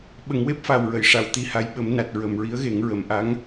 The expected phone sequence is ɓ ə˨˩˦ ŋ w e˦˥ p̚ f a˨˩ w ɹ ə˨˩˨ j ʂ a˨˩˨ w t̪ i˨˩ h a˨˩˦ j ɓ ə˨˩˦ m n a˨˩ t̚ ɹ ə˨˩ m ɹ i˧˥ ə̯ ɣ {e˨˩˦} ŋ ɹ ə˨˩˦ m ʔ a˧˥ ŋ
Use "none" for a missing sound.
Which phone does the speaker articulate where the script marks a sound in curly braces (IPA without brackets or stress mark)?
e˨˩˦